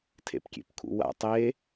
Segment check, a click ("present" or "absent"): absent